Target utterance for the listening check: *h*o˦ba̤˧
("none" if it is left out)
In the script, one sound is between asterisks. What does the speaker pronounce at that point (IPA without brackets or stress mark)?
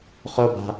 χ